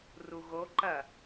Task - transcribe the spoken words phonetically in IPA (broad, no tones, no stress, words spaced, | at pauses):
ruɣo ǃɐ